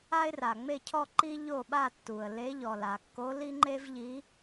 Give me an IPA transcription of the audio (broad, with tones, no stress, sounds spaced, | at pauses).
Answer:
a˥ ɪ̯ r a˩ ŋ͡m e˥˧ cʰ ɔ˥˧ ǃ i˥ ʎ o˥˧ ɓ a˥˧ tː u˩ ə̯ l e˧˥ ʎ ɔ˩ l a˩ kː o˧˥ l i˥ ŋ͡ǃ e˥ v ʎ i˧˥